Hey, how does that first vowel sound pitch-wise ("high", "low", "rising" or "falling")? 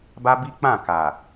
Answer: high